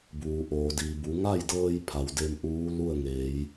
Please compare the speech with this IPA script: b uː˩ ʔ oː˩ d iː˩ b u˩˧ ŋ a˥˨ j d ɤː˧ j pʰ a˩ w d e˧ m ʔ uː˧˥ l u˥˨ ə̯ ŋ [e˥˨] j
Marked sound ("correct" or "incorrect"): incorrect